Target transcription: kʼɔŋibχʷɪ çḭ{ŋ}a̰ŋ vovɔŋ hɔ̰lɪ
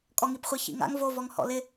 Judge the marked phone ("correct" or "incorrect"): correct